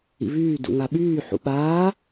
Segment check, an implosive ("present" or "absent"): present